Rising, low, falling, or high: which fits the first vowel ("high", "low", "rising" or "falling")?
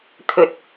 low